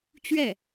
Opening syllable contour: falling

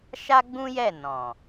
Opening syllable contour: high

